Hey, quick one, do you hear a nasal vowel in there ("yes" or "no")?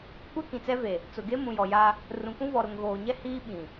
yes